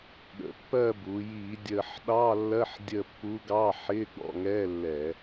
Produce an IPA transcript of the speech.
ɠ ə̰˩˧ pː ɜ˦˨ b u˩˧ j iː˧˩˧ dʲ əː˨˩ ħ ɗ ɑː˧˥˧ lː ɜ˧˥˧ ħ dʲ ə˦˨ pː u˧˥ ɡ ɑ˧˥˧ ħ ɪː˧˥˧ ɡ͡b ɔ̰˦˨ ŋ ɛ˧˥˧ lː ɛ˧˩˧

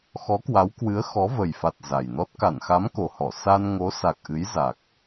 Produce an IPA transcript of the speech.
x ɔ˨˦ k w a˨˦ w k w ɨ˨˦ ə̯ x ɔ˨˦ v ə˨˩ j f a˨˩ t̚ z a˨˩ j n ɔ˦˥ t̚ k a˧˩ n x a˨˦ m k o˨˩ h ɔ˧˩ s a˧ n ŋ o˨˦ s a˨˩ k̚ ʔ ɨ˨˦ j z a˨˩ k̚

